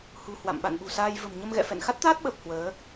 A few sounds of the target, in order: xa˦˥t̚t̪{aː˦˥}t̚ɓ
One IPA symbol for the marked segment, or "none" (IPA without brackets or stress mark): aː˦˥